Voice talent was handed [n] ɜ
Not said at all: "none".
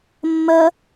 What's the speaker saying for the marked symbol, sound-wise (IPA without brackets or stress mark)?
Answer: mː